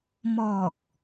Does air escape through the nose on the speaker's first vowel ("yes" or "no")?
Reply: no